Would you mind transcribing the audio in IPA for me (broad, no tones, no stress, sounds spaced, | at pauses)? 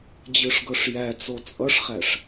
d͡ʑ ɯ ʂ ɡ ɤ ʂ j æ t͡s o t͡sʼ ʌ ʂ χ æ ʂ